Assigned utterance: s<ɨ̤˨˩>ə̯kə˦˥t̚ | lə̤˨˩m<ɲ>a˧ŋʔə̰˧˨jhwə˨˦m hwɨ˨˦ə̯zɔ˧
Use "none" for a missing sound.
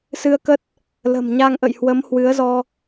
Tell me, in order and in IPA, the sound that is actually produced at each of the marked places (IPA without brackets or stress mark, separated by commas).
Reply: ɨ˧, ɲ